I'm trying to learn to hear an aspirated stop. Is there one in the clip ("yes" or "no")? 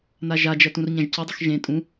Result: no